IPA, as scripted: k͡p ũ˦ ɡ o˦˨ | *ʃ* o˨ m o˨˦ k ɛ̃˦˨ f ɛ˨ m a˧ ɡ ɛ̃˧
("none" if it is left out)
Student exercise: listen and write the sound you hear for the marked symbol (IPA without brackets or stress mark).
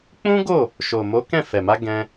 ʃ